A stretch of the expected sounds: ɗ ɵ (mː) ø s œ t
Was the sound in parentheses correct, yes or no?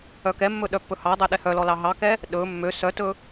yes